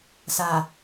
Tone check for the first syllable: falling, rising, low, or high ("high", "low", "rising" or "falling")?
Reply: low